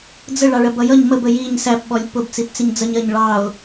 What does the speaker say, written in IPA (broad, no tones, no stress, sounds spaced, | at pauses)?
d͡z ə ɭ ɑ ɭ ɜ b ʌ j ʌ ɲ m ə b ə j i ɲ s æ p ɓ ɔ lʲ p ʊ b t͡s i p t͡s ɪ ɲ d͡z ʌ ɲ ɜ ɲ ɭ ɑ ʊ̯